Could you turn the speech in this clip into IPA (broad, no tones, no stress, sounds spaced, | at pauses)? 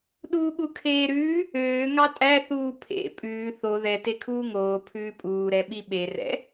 ɗ uː ɠ u kʰ eː ɾ ʉː | øː ŋ ɑ tʼ æ θ uː pʰ ḛ pʼ ʉː θ o ð ɛ t e kʰ uː ŋ oː pʰ ʉː pʼ uː ɾ ɛ ɓ i ɓ e r ɛ̰